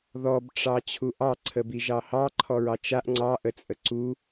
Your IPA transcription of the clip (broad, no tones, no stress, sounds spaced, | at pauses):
ð ɔ b ʈ͡ʂ ɑ t͡ɕʰ u ʔ ɑ ǀʰ ə b i ʒ ɑ h ɑ ǃʰ ɔ ɹ ɑ t͡ʃ a ʔ ŋ͡ǀ ɑ ʔ ə t͡sʼ ə ǀ u